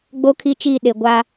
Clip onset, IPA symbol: ɡ͡b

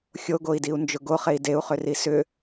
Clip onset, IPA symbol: xʲ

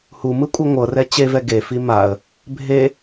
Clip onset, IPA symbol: h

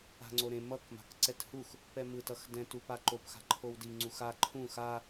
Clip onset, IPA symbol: a̤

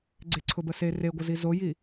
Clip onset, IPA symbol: ɡ͡ǀ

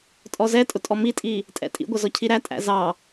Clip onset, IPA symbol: tʼ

